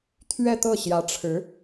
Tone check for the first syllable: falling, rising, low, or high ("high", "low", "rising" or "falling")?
falling